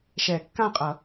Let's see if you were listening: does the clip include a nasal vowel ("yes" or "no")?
yes